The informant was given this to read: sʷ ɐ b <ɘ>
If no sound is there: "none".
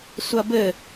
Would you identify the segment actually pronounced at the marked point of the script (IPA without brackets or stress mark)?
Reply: ɘ